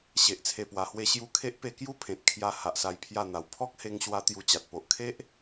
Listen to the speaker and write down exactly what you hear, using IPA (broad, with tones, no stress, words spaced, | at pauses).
ɕe˨ʔt͡sʰe˨˩pwa˨˩hwe˧ ɕju˧kʰe˦ʔpe˧ kju˦pʰẽ˨t̚kʰja˧ ha˨ʔsa˧jpʰja˥˧n̪a˨˩w pʰɔ˦k̚he˧ŋɕwa˧ t̪ju˧t͡ɕa˨t̚ po˨ʔkʰe˦ʔ